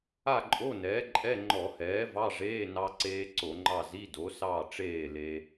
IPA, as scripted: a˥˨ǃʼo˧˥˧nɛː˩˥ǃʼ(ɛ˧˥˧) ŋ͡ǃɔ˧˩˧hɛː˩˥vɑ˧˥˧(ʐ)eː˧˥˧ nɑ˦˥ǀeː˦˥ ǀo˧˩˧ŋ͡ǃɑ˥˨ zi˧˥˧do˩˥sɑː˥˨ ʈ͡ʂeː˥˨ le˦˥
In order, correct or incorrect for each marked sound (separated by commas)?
correct, correct